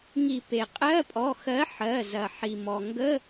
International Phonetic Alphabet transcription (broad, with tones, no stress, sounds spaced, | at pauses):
ŋ i˧˩˧ p e˩ qʼ ɜ˧˥˧ pʼ ɔ˩˧˩ x ɜ˨˥ ħ ɜ˩˧˩ z ɐ˩ ħ i˩ m ɔ˩ ŋ ɡ ə˧˥˧